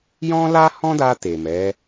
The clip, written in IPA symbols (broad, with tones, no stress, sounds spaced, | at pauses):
j ɔ̃˦ l a˦ h ɔ̃˦ d a˧ t e˨ m ɛ˨˦